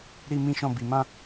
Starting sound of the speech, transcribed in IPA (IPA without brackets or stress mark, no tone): ɾ